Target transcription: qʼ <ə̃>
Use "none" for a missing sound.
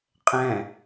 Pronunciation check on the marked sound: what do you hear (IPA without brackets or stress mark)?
ɛ̃